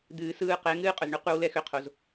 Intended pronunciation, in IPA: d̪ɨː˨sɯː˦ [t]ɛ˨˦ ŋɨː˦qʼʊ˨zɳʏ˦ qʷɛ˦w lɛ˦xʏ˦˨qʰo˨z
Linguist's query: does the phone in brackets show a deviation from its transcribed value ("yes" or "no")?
yes